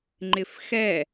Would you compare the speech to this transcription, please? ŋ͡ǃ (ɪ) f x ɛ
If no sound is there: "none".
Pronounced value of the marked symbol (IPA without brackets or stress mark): ɪ